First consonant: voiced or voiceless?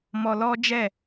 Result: voiced